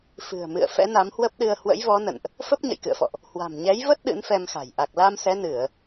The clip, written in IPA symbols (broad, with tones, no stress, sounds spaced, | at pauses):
f ɨ̤˨˩ ə̯ m ɨ̰˧˨ ə̯ f ɛ̰˧˥ n a˨˦ m h w ə˦˥ p̚ ɗ ɨ˧ ə̯ h w ə̰˧˥ j v ɔ˨˦ n ə̰˧˨ n ʔ | f ə˦˥ p̚ ɲ ə̰˧˨ j k ɨ̰˧˨ ə̯ f ɔ̰˧˨ ʔ | h w a̤˨˩ m ɲ ɛ˨˦ j v ə˦˥ t̚ ɗ ɨ̰˧˥ n f ɛ˧ m x a̤˨˩ j ʔ a˨˩ k̚ l a˧ m s ɛ˨˦ n ɨ˧˩˨ ə̯